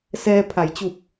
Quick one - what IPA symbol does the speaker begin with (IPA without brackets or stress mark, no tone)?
s